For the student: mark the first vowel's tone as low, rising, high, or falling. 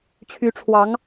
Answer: rising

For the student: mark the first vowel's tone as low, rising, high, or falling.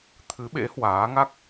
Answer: rising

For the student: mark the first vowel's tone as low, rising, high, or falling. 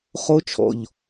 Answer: high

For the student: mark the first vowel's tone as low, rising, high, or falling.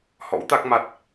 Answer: rising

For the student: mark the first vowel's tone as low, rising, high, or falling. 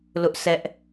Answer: high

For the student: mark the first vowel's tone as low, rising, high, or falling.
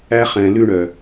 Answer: high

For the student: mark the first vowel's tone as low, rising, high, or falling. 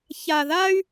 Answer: low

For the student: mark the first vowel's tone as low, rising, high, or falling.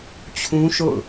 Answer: high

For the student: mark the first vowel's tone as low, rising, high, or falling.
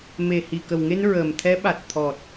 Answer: low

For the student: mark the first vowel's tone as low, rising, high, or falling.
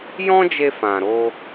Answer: high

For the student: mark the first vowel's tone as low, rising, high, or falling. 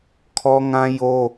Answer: high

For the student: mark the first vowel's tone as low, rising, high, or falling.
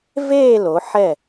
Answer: falling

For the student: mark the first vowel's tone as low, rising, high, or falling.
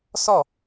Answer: falling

